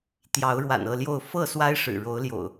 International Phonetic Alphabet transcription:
t̪ j ɑ˨˦ ʊ̯ ɻ w a̰˨˩ n ɤ˥˨ l j o˥˨ ʊ̯ f ɤ˥˨ s w a˦ ɪ̯ ʂ ɻ̩˨˩ ɻ o˨˦ ʊ̯ l j o̰˨˩ ʊ̯

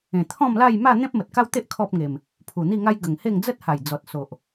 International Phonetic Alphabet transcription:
ẽ˨˩ t̪ʰ ɔ̃˥˧ m l a˥˧ j m a˥˧ n̪ ẽ˦ p̚ m ə˨ t̚ k a˦ w t̪ e˦ ʔ kʰ ɔ˦ p̚ ŋ e˨˩ m | pʰ u˨˩ n̪ i˥˧ ŋ a˦ j ɡ ə˨˩ ŋ h e˥˧ ŋ d͡z ə˦ t̚ h a˨˩ j d͡z ɔ˨ t̚ s o˨ ʔ

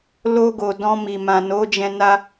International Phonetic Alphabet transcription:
l o˧ ɡ o˨ d ɔ̃˧ m i˨ m ã˨ n o˨˦ d͡ʒ ɛ̃˧ n a˦

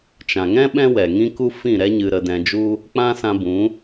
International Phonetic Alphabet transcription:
t͡ʃ ã˨ ŋ ɛ̃˦ ɓ ɛ̃˦ w ɛ˨ ŋ ĩ˦ k u˦ f ĩ˦˨ ɾ ɛ˦ ɲ ɨ˧ ɾ ə˧ d ɛ̃˧ d͡ʒ u˦ | k͡p ã˦ s ã˧ b ũ˨˦

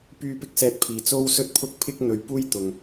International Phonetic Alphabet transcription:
p yː˥ p ɪ˥ k̚ s ɛː˧ t̚ pʰ iː˨ t͡s o˥ w s ɵ˥ t̚ pʰ ʊ˥ k̚ pʰ ɪ˥ k̚ n̪ ɵ˧ ɥ p uː˥ j t̪ ʊ˨ ŋ

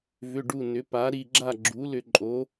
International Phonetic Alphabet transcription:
v ʏ˧˥˧ ɖ u˥˧ n ʏ˨˥ p a˨˥ ɾ i˧ ɡ͡ǁ a˥˧ ɡ͡ǁ u˨˥ l ʏ˧ ǃʼ o˨˥

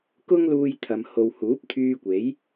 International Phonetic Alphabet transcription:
k ʊ˥ ŋ l uː˧ j t̪ʰ ɐ˨ m h o˨ w h uː˨˥ p̚ t̪ʰ yː˧ kʷ e˨˥ j

